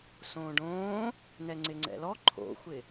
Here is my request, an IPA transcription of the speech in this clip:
s õː ɖ õː | n ɛ ŋ͡ǀ ɪ ŋ͡ǀ ɛ̰ l ɔ ǃʰ o̰ xʷ ɪ

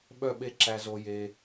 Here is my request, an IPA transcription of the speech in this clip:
ɓ œ˦˨ ɓ e˦˨ ǁ æ˧ z o˧ j e˧

